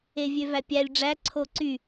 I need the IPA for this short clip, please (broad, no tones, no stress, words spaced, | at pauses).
evʲøvæpʲælʲ ɖ͡ʐæ ǀʰoǀy